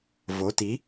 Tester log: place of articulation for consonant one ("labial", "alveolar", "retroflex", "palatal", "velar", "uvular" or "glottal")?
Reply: labial